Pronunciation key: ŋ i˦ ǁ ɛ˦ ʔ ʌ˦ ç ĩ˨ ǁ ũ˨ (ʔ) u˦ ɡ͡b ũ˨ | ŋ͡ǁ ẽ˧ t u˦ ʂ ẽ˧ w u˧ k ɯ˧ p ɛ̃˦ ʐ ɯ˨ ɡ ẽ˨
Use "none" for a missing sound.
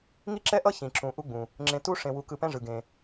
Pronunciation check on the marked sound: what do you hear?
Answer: ʔ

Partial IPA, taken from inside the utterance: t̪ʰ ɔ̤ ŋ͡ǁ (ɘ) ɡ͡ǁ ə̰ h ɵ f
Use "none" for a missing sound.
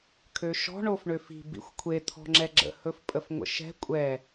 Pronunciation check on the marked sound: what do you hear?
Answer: ɛ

